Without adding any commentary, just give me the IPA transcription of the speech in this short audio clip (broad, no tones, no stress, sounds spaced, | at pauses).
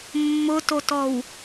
mː ʊ t o t ɔ w